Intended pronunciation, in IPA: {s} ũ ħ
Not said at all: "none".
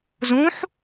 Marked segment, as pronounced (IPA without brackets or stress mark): z